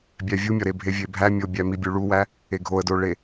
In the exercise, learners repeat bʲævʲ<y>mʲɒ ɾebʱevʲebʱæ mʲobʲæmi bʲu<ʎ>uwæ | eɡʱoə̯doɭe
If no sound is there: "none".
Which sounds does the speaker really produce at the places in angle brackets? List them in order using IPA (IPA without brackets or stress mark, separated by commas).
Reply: u, ɭ